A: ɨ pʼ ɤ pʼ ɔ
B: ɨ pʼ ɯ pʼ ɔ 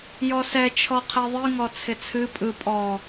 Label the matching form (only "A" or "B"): B